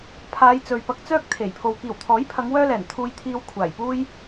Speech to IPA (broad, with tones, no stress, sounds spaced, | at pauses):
pʰ aː˨˧ j t͡s ɵ˨ ɥ p ɐ˧ k̚ t͡s œː˥ k̚ t̪ʰ e˨˩ j pʰ o˧ w k iː˨˩ w t̪ʰ ɔː˨˥ j pʰ ɐ˨˧ ŋ w œː˥ l ɛː˨˩ n t̪ʰ uː˧ j t̪ʰ iː˧ w kʷʰ aː˨˩ j p uː˥ j